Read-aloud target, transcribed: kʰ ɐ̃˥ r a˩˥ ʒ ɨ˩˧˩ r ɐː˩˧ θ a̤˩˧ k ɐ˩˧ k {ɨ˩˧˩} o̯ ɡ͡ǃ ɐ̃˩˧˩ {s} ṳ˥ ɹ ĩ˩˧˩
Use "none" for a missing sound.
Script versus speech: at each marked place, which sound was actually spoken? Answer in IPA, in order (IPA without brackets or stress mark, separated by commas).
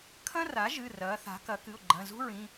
ɨ˩˧˩, z